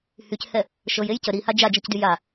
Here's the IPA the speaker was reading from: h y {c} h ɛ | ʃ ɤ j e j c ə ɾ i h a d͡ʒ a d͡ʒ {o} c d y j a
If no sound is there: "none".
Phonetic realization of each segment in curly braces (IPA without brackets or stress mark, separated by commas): c, ɤ